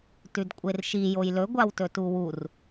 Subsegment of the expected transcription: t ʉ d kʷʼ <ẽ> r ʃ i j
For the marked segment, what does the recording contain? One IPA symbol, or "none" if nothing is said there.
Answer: e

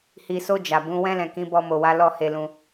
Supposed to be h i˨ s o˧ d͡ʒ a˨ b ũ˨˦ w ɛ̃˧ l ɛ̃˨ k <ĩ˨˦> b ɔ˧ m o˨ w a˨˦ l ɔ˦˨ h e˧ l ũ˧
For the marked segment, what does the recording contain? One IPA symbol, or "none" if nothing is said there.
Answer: ĩ˨˦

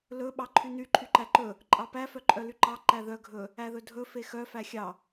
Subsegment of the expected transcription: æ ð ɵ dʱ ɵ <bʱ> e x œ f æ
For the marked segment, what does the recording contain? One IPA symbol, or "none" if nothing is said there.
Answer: f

